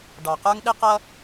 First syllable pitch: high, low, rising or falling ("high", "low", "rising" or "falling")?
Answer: low